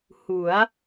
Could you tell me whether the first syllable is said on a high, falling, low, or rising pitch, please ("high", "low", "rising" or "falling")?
rising